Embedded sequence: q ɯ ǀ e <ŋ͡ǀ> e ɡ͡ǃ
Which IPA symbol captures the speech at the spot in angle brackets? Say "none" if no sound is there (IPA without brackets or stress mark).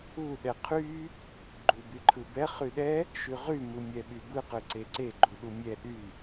ǀ